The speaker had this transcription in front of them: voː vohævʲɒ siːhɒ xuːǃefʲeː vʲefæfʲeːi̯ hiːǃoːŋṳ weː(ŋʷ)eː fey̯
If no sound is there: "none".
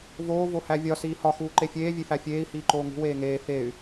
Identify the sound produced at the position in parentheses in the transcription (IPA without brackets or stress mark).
ŋ